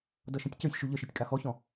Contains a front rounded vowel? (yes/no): no